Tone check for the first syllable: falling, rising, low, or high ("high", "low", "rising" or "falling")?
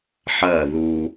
falling